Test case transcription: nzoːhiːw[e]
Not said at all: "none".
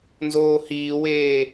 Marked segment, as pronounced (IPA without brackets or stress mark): eː